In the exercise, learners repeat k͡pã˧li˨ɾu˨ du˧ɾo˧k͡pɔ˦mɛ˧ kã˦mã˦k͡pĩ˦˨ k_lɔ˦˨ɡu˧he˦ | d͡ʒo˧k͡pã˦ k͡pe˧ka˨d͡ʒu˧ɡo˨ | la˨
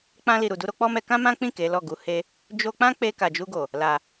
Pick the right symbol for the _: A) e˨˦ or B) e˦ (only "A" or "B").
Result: A